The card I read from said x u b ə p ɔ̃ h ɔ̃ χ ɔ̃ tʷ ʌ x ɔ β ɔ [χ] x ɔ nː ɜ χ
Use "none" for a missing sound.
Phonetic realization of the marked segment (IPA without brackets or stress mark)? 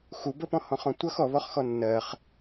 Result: χ